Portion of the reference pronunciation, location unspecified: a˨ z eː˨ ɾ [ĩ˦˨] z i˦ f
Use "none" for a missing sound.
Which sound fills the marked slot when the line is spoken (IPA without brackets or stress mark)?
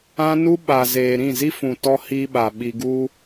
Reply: ĩ˦˨